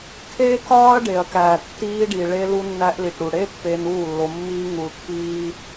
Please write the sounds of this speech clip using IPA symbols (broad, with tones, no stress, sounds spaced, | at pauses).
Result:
kʰ eː˦ k ɒː˦ ɐ̯ ɖ e˨ ɐ̯ k æː˨ tː iː˧ ɖ i˨ ɭ e˧ l u˧ nː æ˧ ʔ l i˨ ʈ ɾ u˨ ɽ e˦ pː eː˧ n uː˦˨ lː o˧ mː iː˦ ŋ u˧ l pː iː˦